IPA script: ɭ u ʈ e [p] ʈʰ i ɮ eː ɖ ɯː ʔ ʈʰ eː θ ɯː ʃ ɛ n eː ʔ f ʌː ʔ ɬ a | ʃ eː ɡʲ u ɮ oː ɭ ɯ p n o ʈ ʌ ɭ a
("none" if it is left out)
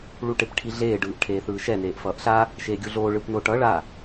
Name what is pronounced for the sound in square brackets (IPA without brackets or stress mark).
p